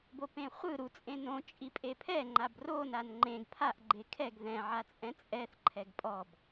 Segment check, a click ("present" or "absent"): present